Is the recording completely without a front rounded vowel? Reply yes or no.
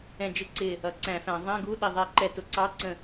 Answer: yes